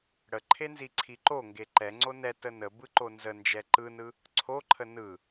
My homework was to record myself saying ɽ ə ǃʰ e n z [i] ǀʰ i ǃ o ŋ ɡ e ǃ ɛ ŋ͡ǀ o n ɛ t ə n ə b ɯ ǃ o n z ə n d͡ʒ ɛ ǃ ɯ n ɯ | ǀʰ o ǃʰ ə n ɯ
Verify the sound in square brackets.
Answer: correct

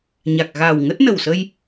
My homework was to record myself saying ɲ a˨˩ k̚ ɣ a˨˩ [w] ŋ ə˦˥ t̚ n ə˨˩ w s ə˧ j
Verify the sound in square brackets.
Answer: correct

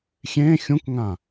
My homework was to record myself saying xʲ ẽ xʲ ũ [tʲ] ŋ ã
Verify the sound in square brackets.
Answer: incorrect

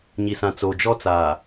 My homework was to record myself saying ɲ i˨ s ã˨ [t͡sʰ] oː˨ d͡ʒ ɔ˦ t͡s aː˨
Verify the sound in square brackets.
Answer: incorrect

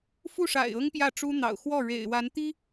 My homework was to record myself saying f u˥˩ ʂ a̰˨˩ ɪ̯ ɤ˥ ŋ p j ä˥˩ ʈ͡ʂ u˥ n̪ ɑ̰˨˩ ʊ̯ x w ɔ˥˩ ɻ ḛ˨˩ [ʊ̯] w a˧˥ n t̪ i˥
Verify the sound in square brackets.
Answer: incorrect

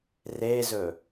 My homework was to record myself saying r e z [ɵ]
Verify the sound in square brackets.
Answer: correct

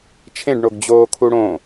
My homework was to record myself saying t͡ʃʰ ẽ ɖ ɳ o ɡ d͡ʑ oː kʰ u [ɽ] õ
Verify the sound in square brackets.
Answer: correct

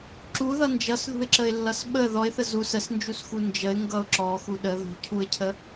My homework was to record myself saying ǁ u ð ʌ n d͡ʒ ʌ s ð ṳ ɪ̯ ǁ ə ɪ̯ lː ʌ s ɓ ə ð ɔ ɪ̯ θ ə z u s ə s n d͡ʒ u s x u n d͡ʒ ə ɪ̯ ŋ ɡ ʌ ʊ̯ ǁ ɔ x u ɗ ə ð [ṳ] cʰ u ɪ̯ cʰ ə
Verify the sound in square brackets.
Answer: correct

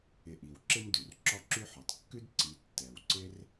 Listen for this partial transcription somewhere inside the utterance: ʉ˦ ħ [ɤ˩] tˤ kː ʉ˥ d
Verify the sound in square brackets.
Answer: incorrect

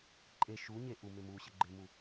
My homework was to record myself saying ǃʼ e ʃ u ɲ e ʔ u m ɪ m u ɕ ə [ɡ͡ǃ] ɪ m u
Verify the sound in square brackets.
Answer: correct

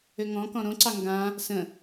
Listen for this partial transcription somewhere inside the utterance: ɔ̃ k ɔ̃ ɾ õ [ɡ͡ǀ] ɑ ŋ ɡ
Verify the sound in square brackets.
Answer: incorrect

